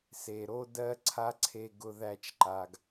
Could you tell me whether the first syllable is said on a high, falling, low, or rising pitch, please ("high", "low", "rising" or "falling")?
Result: low